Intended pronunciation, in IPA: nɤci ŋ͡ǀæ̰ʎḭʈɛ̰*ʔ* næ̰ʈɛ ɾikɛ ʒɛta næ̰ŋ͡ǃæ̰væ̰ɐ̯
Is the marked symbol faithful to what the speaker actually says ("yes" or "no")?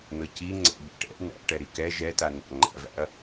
yes